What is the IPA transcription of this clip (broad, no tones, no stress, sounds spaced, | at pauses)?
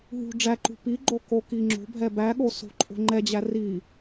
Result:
ɦ ṳ ɖ͡ʐ æ ǃ ṳ p i ɡ͡ǃ o k o k i ŋ͡ǁ o̤ bʱ ɛ b æ ɠ o s o̤ ǃʼ o̤ ŋ͡ǃ ɛ d͡ʑ æ r i